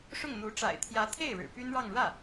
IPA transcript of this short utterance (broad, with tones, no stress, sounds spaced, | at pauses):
ʂ ʊ˥˩ ŋ n̪ u˧˥ ʈ͡ʂ a̰˨˩ ɪ̯ t̪ʰ j ä˧˥ t̪ʰ e˥˩ ɪ̯ ɻ ɻ̩˨˩ p y˥ n ɻ ɑ˥˧ ŋ ɻ ä˥˩